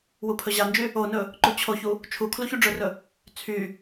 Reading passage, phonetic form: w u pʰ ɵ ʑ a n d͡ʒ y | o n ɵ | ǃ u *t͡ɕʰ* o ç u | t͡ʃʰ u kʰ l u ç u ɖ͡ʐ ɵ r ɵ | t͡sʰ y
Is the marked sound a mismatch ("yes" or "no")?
no